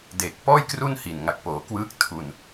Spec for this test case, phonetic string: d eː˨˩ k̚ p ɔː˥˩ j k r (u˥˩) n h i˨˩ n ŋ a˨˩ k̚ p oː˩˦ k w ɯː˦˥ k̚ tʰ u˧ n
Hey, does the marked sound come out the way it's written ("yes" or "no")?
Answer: yes